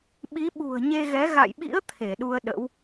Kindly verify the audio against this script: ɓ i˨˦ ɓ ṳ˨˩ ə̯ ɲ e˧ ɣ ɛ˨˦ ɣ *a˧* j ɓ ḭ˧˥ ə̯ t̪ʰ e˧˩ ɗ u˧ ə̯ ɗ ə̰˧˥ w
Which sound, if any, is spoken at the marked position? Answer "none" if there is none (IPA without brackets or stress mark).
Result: a̰˧˨